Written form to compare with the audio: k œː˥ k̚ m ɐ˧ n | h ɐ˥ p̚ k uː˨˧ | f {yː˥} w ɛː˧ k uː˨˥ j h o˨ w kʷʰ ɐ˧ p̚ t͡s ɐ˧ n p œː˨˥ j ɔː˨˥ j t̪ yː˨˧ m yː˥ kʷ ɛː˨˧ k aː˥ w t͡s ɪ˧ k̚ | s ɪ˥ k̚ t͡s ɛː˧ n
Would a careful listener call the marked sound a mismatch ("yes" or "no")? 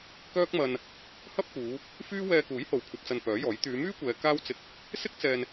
no